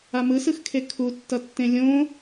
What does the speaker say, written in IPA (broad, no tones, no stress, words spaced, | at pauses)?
amɯsɯxkʰe kʰutːʌtːẽ lʲõ